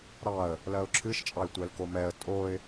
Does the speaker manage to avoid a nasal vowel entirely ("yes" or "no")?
yes